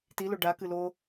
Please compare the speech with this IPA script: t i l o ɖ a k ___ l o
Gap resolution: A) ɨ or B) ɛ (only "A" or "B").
A